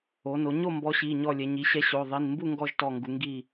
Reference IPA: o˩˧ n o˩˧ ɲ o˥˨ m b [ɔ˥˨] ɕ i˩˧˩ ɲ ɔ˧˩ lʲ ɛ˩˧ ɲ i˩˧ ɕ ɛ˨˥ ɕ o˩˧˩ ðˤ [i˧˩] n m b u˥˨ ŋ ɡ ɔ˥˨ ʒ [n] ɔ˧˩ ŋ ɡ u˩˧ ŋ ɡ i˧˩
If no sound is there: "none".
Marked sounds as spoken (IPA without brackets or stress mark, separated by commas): ɔ˨˥, i˩˧˩, t